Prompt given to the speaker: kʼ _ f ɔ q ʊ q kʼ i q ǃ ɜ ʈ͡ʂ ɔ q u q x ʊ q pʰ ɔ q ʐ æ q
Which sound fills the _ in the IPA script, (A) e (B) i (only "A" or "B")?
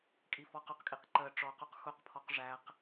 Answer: B